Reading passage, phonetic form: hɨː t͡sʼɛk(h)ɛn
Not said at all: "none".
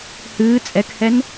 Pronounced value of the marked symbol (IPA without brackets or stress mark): h